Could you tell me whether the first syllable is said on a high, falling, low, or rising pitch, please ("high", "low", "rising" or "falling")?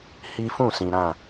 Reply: high